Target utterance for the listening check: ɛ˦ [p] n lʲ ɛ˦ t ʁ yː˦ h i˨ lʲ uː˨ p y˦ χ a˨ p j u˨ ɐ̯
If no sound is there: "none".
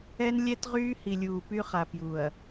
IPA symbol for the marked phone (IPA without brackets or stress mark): none